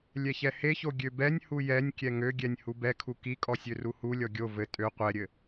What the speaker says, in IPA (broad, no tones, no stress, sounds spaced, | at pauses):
lʲ ɛ ç ɛ h e ç o ɡʲ ø b ɛ nʲ h u j ɛ nʲ kʲ ɛ ŋ ø ɡʲ ɛ nʲ h u b ɛ kʰ u k i kʼ ɔ sʲ ø r u h u lʲ ɔ ɡʲ o v ɘ tʼ ø qʷ ɛ ɾʲ ɘ